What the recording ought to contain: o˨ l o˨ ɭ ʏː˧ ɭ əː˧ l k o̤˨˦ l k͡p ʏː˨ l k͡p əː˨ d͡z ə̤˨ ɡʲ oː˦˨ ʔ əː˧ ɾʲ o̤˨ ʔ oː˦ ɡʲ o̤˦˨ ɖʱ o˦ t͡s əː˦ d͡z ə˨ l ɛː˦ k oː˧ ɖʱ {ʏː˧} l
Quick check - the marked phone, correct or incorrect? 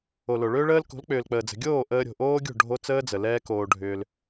correct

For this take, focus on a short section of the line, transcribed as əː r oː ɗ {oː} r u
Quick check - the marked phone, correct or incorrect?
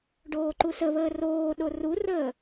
incorrect: o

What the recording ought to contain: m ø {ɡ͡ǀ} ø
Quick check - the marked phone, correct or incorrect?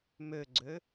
correct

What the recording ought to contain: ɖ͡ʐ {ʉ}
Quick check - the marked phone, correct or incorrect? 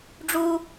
incorrect: u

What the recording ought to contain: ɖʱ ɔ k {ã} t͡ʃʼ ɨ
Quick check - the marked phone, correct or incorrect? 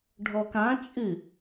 correct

